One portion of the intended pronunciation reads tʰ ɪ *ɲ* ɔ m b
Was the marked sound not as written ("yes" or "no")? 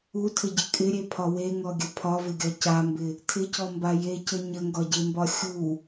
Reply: yes